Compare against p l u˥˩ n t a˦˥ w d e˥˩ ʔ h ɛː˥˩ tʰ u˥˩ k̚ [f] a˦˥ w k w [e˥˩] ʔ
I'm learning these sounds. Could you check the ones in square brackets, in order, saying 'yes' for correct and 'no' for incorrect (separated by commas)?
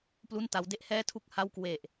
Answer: no, no